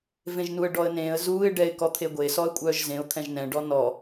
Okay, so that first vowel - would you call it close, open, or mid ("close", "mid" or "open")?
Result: mid